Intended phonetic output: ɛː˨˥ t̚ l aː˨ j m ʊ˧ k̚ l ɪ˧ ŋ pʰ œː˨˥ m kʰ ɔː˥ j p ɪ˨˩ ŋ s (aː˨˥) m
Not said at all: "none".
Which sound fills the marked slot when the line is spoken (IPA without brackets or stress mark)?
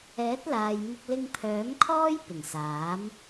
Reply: aː˨˥